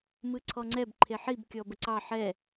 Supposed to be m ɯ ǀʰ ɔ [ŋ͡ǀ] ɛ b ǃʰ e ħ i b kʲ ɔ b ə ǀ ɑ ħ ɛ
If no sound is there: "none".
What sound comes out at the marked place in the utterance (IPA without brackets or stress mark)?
ŋ͡ǀ